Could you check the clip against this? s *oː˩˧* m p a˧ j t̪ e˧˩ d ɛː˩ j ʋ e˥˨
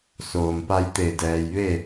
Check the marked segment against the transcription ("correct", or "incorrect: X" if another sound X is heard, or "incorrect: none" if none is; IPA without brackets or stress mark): incorrect: oː˩